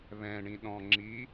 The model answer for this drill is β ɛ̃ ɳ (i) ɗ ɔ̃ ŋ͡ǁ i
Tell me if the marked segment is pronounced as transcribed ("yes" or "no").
no